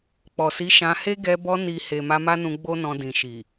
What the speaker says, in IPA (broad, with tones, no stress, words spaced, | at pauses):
k͡pɔ˨si˨˦ ʃã˧he˦ ɡɛ˧ bɔ˧ ni˨ he˨ ma˧ma˦nũ˧ ɡ͡bo˦nɔ̃˧ dĩ˨ʃi˨